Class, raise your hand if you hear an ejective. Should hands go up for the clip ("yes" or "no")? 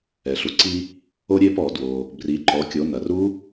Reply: no